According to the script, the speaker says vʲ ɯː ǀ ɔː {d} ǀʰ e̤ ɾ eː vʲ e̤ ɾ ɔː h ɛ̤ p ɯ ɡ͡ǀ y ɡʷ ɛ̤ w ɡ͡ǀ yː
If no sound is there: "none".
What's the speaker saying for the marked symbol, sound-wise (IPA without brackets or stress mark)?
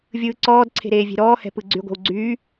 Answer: d